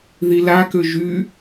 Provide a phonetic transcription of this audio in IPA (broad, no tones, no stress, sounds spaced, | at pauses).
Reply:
ð i l a k ø ʒ y